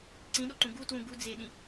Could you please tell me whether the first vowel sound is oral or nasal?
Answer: nasal